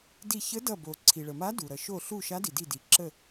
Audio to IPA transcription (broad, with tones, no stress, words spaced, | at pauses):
di˧˩çə˧˥dʌ˧˩bo˩ ǀʰi˩ɭə˩ma˧˥ du˩ɾʌ˩ ʃo˧˩ɬu˧˩ ʃa˧˥di˩di˧˩di˩ ǁə˧˩